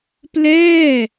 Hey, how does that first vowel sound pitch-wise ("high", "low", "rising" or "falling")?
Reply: falling